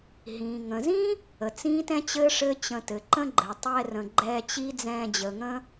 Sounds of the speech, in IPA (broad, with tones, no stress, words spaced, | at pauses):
ɦĩ˩ŋə̃˩zĩː˥ | ə˩t͡sĩː˥tɛ̃˥t͡ɕɘː˥ ʂɘ˥t͡ɕə̃˧ tɘ˩ǃə̃˥ɡ͡ǃɘː˩ tˤɛ˧rə̃˩ɡ͡ǃɛː˧ t͡ɕi˥ d͡zɛ̃ː˧d͡ʑəː˩ŋə̃ː˥